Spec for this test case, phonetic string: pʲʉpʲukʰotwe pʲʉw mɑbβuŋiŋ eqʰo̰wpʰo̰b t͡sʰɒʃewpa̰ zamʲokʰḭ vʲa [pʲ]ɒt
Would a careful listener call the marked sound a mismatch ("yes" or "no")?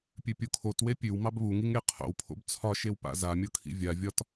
yes